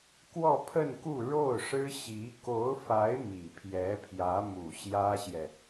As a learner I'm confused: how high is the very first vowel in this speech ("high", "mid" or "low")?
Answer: mid